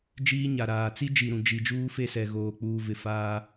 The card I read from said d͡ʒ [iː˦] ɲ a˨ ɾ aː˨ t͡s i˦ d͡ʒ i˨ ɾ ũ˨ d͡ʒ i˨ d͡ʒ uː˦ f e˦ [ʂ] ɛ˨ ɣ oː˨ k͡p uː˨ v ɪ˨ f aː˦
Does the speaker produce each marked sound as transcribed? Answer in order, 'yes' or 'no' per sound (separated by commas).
yes, no